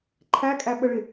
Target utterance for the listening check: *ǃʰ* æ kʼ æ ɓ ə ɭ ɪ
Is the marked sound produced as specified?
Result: yes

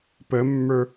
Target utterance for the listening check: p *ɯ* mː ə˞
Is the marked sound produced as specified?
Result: no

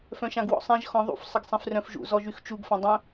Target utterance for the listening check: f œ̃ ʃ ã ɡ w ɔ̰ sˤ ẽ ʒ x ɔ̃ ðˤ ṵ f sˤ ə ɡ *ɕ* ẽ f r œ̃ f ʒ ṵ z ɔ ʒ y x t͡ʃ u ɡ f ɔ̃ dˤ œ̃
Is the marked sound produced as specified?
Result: no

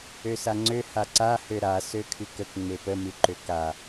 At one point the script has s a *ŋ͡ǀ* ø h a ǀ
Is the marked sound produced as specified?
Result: yes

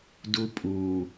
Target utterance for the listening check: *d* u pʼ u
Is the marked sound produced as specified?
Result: yes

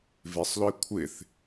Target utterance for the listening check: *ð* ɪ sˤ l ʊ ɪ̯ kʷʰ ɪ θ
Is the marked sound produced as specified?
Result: no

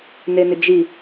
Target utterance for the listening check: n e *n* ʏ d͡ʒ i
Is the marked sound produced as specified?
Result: yes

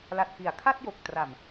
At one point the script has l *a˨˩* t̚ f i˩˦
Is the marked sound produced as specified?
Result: yes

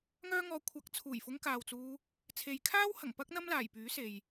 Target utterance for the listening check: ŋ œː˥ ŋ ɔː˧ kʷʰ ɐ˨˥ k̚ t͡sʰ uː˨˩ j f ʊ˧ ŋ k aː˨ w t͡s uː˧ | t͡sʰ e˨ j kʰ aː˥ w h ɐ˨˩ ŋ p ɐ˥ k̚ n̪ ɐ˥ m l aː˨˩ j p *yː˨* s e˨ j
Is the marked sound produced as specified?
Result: no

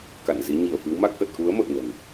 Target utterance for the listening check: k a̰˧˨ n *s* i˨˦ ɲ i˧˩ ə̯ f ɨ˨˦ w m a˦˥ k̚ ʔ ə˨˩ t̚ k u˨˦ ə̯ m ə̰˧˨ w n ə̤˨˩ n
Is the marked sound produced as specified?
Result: no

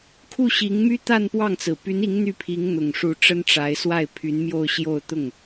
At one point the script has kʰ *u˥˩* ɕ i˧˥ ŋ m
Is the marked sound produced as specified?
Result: yes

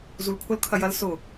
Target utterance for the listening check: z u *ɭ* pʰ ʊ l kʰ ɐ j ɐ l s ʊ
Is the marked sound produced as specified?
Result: no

